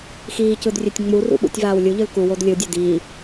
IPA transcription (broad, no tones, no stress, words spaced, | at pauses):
xiːcɯdrʲetʲ ŋ͡murṵɓṵtʲvaːw lʲuʎɯl kuwod lʲɯdʲe diː